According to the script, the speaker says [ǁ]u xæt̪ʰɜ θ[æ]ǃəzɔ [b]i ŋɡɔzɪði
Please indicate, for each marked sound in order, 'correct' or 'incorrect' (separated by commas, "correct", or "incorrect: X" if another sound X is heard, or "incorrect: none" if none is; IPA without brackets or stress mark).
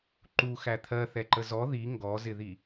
incorrect: ǃ, incorrect: ɛ, incorrect: ð